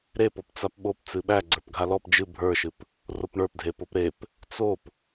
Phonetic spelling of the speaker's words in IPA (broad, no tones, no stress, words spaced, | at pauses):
ɾepɔp t͡sapɓop t͡sɨɓæ ɡ͡ǀə˞pɡʱalɔp d͡ʒɨ bʱə˞ʃɨp | ropɳə˞pdʱepop ɾep | t͡sop